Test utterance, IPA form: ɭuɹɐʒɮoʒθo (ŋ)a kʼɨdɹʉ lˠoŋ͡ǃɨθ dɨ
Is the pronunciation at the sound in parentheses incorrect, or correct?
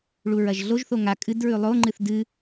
correct